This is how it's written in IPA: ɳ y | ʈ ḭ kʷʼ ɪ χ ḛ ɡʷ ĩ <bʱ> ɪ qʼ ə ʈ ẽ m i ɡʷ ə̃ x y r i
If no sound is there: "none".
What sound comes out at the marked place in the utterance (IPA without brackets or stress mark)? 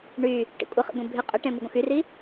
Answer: bʱ